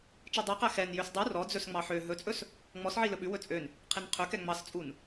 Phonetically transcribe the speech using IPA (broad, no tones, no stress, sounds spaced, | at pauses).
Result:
t͡ʃ i dˤ i q æ x ɛ n j ø s dˤ u r ɔ d͡z ɵ s ŋ͡m ɑ ħ ø ɦ ɵ t͡sʼ ɵ s | ŋ͡m ɔ s ʕ i l ɵ ɓ ʉ w ɵ t͡sʼ ø n | qʰ i n qʰ ø k ɛ ŋ͡m ɑ s t͡sʼ u n